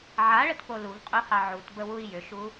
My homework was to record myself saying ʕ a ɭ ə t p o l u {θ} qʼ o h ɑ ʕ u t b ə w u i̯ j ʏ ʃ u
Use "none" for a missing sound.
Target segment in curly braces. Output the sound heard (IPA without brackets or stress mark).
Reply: v